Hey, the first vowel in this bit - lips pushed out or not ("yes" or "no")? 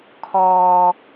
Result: yes